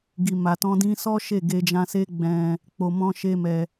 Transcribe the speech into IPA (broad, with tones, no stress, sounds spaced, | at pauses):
ɡ i˨ m a˨ t ɔ̃˧ d ĩ˧ s ɔ˦ ʃ e˦˨ ɡ e˧ d͡ʒ ã˧ s e˦ ɡ͡b ɛ̃˧ | k͡p o˨ m ɔ̃˧ ʃ e˦ m ɛ˧